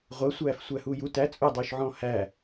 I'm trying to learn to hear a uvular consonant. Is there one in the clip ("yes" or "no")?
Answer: yes